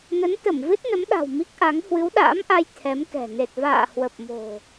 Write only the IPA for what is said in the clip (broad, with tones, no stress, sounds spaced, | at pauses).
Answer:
n ə˨˦ n t̪ ə˧˩ m v ɨ˦˥ t̚ n ə˨˦ m ɗ a̤˨˩ w m i˦˥ k̚ ʔ a˨˦ ŋ h w ɨ˨˦ w ɗ a̰ː˧˥ m ʔ a˧ j t̪ʰ ɛ˨˦ m k ɛ̤˨˩ n e˨˩ t̚ v a̰ː˧˨ h w ə˨˩ p̚ m o̤˨˩